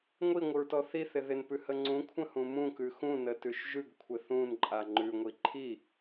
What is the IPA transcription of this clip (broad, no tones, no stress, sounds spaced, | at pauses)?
ŋʷ i ŋʷ ɪ ɹ t ɔ θ i θ ɪ ð ɪ n p ʉ h ə ŋ͡ǀ ũ kʷʰ ə̃ h ũ m ũ k ʉ x ũ n ə t ʉ ʃ ʒ ʉ ɡ kʷʰ ɪ θ ũ n ǃʼ a ŋ͡ǃ ʉ ŋʷ i ǃʰ i